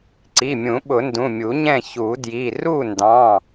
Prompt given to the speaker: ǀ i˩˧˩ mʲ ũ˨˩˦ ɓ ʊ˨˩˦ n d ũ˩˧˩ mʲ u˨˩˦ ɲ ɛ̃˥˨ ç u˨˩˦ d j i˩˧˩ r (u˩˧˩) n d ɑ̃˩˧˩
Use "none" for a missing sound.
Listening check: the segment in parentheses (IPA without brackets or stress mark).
u˥˨